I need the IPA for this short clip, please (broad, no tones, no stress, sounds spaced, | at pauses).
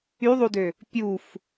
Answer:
y ðˤ u d ø | pʲ u f